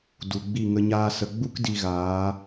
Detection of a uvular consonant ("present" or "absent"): absent